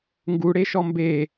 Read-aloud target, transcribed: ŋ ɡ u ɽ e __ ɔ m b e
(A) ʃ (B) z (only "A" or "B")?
A